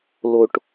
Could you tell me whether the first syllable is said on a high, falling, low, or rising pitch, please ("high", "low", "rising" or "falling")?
low